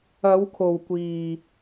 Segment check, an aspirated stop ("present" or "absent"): present